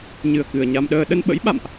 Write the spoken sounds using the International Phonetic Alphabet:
ɲ ɨ˨˩ ə̯ k ɨ˨˩ ə̯ ɲ a˧ m ɗ əː˧ ɗ ə˧ n ɓ ə̰˧˥ j ɓ a̰˧˨ m ʔ

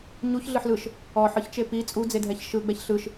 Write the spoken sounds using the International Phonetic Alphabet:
ɲ u ç ɮ ɯ ħ l ɯ ʃ | ɔ ħ ɯ ç t͡ʃ e p i t͡sʼ u d͡z e dʱ ɛ ç ʃ ɯ ɡ͡b ɛ ç ɬ ɯ ʃ

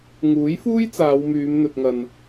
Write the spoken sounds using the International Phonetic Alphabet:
ŋ uː˨˥ j f uː˥ j t͡s aː˨˧ w m yː˨˧ m n̪ ɵ˨ t̚ ŋ ɐ˨ n

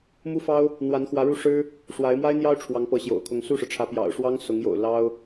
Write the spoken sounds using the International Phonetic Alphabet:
m u˥ f ɑ˥ ʊ̯ | n̪ w a˧˥ n x w ä˧˥ ɻ u˥˩ ʂ ɻ̩˥ | ʂ w a˧˥ ɪ̯ m w a˥ ɪ̯ n̪ j ɑ˥ ʊ̯ ʈ͡ʂʰ w ɑ˧˥ ŋ p ɤ˧˥ ɕ j o̰˨˩ ʊ̯ kʰ ʊ˧˥ ŋ s u˥˩ ʂ ɻ̩˩ ʈ͡ʂʰ ä˧˥ p j ɑ̰˨˩ ʊ̯ ʂ w ɑ˥ ŋ s ʊ˧˥ ŋ j o̰˨˩ ʊ̯ l ɑ˥ ʊ̯

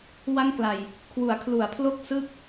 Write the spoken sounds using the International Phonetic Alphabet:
w a˥˩ ŋ k l a˨˩ j | kʰ w u˩˦ a̯ kʰ l u˩˦ a̯ pʰ l o˥˩ k̚ s ɯ˦˥ k̚

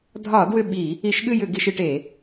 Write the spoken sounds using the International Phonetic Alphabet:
dʱ ɒ˧˩˧ d w ʏ˥˩ ɓ i˧˩˧ | i˧˩˧ ʃ ɠ ɨ˥˩ j ʏ˧˩˧ ɡ i˧˩˧ ʃ ɨ˧˩˧ ʈ e˧˩˧

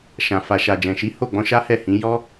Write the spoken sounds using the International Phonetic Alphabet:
ʃ ã˨ f a˨ ʃ a˨ d͡ʒ ɛ̃˨ ʃ i˨˦ h o˦˨ ɡ͡b ɔ̃˧ ʃ a˦ h ɛ˦˨ h ĩ˨˦ j ɔ˦

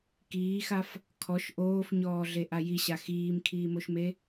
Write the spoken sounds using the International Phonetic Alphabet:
k iː x a f | kʰ ɔ ʃ ʔ oː f ɲ ɔː ɮ e ʔ a j i ɕ a x iː m kʰ iː m o ʃ m e

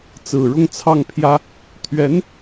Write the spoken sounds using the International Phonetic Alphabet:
t͡s ɹ̩˨˩ ɻ ʊ˥˧ ŋ t͡sʰ ɑ˥˩ ŋ pʰ j ä˥ | t̪ʰ ɥ ɛ˧˥ n

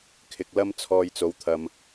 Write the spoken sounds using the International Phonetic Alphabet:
kʰ ɪ˨ k̚ l ɐ˥ m t͡sʰ ɔː˧ j t͡s o˨˧ w t̪ʰ ɐ˧ m

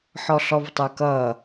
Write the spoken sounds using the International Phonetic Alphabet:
ħ ɔ ɬ ɔ v tˤ ə˞ k ʌ

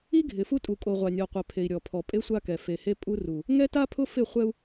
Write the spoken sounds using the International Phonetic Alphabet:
i˦ ɡʱ ɪ˨ f u˦ tʼ u˨ kʼ o˨ ʁʷ a˨ nʲ ɔ˨ qʷ ɛ˨ pʰ e˨ i̯ ɾʲ ɔ˨ pʰ ɔ˨ pʼ e˦ sʷ a˦ k ɛ˨ f e˨ h e˦ pʼ u˦ r u˨ | ŋ ɛ˦ t a˦ pʰ ʊ˦ f ɪ˦˨ χʷ ɛ˦ u̯

